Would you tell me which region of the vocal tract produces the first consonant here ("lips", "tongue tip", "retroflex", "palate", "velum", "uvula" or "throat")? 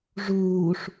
retroflex